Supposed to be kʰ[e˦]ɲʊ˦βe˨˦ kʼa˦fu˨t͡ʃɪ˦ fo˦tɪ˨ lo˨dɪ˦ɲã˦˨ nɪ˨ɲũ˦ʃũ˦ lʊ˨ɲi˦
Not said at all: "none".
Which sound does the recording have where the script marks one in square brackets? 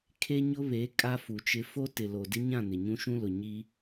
e˦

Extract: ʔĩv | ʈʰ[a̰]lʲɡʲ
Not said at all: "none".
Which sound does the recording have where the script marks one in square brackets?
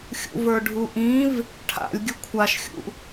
a̰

